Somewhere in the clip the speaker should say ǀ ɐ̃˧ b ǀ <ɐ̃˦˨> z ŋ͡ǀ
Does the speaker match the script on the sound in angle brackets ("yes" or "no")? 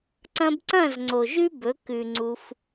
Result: yes